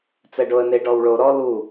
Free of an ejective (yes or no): yes